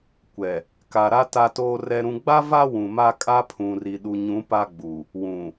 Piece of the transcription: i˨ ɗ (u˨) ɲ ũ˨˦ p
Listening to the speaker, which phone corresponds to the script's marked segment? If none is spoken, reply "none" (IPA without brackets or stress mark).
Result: u˨